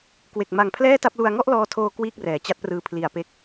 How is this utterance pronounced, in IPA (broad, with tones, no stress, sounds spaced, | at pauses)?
k w e˨˩ k̚ m a˨˩ ŋ pʰ l ɛː˥˩ t a˥˩ p̚ l u˧ a̯ ŋ ɔ˥˩ ʔ l ɔː˧ tʰ oː˧ k w iː˥˩ k̚ r ɛː˩˦ t͡ɕ a˦˥ t̚ p r ɯː˧ pʰ l i˨˩ a̯ p e˦˥ k̚